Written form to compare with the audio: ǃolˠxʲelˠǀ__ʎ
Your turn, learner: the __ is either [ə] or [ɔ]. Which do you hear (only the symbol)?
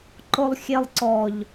ɔ